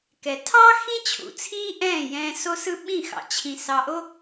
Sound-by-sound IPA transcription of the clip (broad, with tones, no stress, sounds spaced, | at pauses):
k ɛ˩ tʰ ɑ˥ x ĩ˥ t͡ɕʰ ṵ˩ t͡sʰ iː˥ ʔ ɛ̃ː˥˩ j ɛ̃ː˧ s o˥ s ɯ˥ ɓ ĩ˥˩ x ɑ̰˩ t͡ɕʰ ĩ˧ s ɑ˧ ʔ o˥